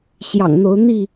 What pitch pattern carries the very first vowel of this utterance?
low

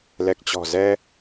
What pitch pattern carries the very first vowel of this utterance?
low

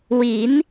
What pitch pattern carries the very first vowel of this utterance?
rising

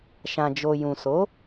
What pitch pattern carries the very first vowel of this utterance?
low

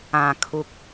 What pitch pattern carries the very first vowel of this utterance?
low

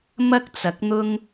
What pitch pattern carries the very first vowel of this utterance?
high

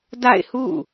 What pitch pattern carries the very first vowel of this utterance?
falling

